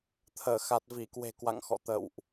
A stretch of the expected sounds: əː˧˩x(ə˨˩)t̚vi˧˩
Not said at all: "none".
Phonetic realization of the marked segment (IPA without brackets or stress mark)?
a˨˩